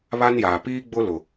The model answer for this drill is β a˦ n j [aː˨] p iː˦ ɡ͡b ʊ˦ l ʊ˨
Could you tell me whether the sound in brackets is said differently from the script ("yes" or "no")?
no